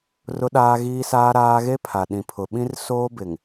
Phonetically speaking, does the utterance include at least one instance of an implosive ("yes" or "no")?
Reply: yes